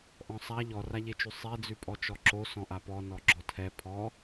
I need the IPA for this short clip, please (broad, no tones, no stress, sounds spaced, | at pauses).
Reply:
ʔ ɔ̃ sˤ a ʎ ɔ r a ʎ e t͡ʃ ʉ sˤ ɛ d͡z ʉ pʼ ɔ t͡ʃ ɔ ǁ o s ɔ̃ ʔ a p ɔ n ɔ ɡ͡ǁ ɔ tʰ ɛ pʰ ɔ